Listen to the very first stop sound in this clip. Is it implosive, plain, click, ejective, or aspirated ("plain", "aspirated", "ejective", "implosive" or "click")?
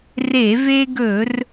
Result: plain